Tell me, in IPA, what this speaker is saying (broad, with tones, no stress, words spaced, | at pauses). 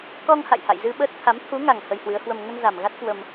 kɔ˧ŋha̰˧˨j ha̰˧˨jzɨ˧ɓəː˦˥t̚ t̪ʰa˨˦m t̪ʰu˨˦ŋa˨˩ŋ hə˧jhwɨ˨˦ə̯hwə˧m ŋə˧nza˨˩mɣa˦˥t̚ kwə˧m